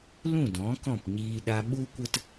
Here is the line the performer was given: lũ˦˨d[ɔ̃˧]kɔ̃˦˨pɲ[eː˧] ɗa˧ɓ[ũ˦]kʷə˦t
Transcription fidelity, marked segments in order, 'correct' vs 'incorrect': incorrect: ɔ̃˨˦, incorrect: iː˧, incorrect: u˦

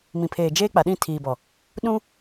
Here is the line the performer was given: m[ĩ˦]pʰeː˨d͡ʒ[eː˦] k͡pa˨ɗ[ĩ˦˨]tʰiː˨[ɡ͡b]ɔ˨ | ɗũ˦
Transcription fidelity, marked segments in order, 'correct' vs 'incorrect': incorrect: ĩ˨, correct, correct, incorrect: b

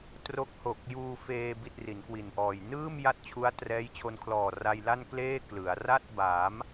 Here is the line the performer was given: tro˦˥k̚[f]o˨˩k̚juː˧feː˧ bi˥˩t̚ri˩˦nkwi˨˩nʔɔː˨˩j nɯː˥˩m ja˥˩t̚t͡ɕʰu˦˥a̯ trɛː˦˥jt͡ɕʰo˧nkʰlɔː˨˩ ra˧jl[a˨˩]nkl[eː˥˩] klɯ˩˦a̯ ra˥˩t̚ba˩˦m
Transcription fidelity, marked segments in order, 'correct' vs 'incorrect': incorrect: h, incorrect: a˥˩, correct

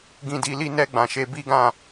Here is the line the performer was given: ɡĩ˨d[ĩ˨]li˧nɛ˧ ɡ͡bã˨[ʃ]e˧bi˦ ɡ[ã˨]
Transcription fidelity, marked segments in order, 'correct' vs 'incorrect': incorrect: i˨, correct, incorrect: ã˦˨

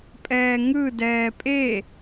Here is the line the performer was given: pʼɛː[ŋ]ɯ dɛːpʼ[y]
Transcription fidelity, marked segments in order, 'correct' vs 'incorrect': correct, incorrect: e

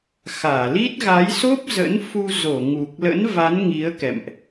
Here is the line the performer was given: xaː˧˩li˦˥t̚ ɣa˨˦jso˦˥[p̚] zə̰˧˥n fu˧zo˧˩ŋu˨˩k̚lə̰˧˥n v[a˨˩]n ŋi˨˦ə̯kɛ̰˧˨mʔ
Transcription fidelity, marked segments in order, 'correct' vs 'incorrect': correct, incorrect: a˨˦

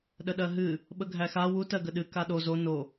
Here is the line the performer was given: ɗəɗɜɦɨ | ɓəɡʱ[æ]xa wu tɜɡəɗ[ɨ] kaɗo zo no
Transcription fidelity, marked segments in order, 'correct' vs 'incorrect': correct, correct

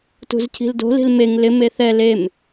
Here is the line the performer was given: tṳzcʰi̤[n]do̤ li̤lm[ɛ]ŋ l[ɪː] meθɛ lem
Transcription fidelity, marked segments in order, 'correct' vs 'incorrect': incorrect: l, incorrect: e, incorrect: ɪ

